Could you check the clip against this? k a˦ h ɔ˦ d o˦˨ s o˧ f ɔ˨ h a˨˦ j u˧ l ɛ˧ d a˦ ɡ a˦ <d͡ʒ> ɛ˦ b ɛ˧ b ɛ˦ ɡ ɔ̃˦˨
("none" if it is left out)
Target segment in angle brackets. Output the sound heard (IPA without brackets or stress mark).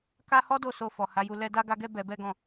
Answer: ɡ